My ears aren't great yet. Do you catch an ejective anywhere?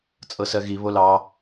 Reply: yes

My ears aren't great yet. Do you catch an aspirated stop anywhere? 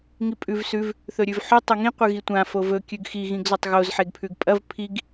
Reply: yes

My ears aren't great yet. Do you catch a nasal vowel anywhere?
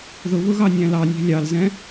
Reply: yes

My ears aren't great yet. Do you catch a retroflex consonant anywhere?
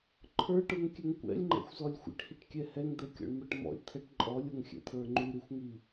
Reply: yes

